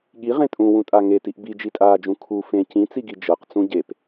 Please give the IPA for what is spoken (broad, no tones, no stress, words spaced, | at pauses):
ɠiʁẽ tʼũwũtʼa ŋetiʔ bid͡ʒitʼaːd͡ʒũ kʰu fẽ cĩt͡siɡi d͡ʒɤqt͡sũ ɟep